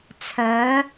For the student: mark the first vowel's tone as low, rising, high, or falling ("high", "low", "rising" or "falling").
rising